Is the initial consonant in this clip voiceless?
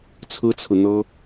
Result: yes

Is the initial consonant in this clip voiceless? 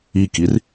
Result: yes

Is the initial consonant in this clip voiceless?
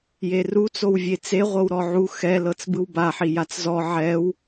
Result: no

